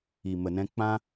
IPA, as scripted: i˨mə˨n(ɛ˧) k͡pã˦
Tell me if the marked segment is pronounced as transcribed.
no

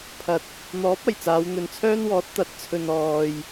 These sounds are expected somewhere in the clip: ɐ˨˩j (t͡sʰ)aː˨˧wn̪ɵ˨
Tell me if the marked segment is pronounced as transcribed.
no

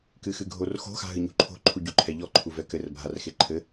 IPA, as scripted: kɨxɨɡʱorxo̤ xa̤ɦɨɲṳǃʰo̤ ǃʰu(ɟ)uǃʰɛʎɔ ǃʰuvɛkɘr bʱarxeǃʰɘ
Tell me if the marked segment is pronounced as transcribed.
yes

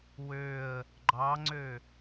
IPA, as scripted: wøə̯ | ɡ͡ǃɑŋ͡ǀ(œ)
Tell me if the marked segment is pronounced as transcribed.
no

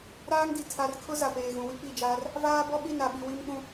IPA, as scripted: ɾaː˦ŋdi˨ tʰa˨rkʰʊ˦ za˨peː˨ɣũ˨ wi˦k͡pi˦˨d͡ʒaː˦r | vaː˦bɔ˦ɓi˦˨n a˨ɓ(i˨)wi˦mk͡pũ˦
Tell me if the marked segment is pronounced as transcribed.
yes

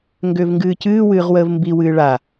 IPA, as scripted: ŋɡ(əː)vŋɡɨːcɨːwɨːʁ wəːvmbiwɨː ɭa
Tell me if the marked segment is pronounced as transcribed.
no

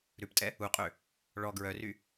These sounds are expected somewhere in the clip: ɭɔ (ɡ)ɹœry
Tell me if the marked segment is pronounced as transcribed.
yes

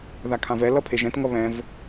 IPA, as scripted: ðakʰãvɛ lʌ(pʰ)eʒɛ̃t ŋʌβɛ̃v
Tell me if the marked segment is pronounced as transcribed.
yes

